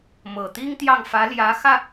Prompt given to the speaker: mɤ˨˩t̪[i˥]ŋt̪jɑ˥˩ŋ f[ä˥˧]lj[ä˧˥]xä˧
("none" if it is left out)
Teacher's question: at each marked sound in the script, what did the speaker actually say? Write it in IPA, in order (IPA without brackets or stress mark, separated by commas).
i˥, ä˧˥, ä˧˥